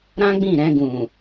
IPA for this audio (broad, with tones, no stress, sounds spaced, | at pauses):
ɾ ã˦ ɡ͡b ĩ˦˨ ɾ ɛ̃˧ ɡ ũ˨